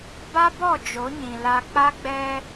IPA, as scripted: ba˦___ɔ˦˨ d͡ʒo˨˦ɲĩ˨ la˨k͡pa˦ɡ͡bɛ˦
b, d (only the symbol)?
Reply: b